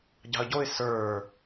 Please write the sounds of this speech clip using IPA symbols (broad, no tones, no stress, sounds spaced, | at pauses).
ɟ ɑ̤ ə̯ ɟ o ɪ̯ s ə˞